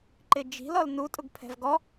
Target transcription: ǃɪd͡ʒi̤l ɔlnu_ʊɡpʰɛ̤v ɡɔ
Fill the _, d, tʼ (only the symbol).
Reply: tʼ